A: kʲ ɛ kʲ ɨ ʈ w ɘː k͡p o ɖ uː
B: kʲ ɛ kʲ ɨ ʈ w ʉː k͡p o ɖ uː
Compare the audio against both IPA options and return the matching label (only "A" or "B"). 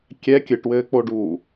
A